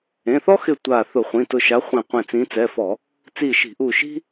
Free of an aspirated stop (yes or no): yes